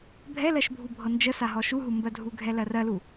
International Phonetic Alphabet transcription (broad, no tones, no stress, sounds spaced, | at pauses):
bʱ ɛ l ɜ ʃ bʱ u bʱ ɤ n d͡ʒ ə s a ɦ ɔ ʃ u ɦ u m b ɜ dʱ u ɡʱ ɛ l ɜ r ɜ l u